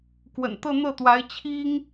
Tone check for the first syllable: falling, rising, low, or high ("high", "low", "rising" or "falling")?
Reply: low